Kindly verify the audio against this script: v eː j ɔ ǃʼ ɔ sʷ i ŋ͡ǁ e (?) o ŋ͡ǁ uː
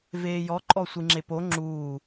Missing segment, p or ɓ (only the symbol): p